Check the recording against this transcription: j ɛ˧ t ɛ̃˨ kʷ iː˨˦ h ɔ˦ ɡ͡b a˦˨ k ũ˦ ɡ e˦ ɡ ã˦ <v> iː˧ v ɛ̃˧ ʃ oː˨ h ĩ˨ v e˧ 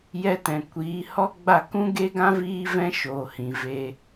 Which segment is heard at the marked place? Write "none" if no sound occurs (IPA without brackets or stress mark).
v